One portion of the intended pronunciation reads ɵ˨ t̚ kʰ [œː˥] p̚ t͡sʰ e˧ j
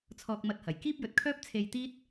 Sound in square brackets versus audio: correct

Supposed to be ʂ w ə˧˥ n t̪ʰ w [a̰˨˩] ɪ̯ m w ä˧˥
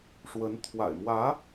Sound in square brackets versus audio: correct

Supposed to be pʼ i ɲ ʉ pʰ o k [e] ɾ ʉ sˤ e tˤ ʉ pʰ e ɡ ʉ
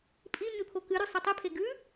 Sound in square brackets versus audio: incorrect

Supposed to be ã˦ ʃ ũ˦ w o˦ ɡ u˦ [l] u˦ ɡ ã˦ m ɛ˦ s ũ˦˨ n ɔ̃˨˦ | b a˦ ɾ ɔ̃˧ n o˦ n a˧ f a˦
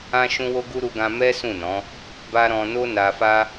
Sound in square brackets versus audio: incorrect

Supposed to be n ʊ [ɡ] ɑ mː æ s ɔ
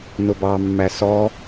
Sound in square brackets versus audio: incorrect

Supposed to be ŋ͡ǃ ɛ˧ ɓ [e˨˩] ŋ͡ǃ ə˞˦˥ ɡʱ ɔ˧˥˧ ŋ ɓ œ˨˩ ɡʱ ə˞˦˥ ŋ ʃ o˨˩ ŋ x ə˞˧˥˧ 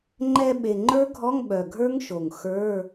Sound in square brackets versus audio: correct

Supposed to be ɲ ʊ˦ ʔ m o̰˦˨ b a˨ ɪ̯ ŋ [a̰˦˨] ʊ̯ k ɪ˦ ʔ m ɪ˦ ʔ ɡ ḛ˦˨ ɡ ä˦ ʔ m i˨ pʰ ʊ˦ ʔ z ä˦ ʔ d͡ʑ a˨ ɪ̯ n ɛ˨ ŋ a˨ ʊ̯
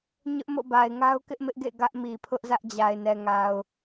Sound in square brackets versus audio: incorrect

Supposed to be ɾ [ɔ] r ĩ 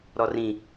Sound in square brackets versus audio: correct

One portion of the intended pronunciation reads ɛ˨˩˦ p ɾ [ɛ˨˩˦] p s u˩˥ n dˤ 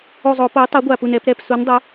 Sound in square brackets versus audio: incorrect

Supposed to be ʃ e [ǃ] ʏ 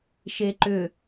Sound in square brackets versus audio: correct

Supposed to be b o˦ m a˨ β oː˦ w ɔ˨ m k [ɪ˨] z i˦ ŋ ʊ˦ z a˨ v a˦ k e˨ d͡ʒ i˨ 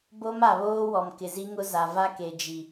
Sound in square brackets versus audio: correct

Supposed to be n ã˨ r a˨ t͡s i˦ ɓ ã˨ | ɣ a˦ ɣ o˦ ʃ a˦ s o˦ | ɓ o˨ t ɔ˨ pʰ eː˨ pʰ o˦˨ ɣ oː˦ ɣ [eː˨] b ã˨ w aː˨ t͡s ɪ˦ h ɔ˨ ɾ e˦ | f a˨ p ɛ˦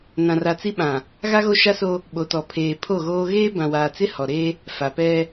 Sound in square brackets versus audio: incorrect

